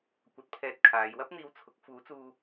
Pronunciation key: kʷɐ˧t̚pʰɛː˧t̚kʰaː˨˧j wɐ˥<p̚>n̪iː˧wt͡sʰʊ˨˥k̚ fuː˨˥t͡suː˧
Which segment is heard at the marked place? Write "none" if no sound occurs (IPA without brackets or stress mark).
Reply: p̚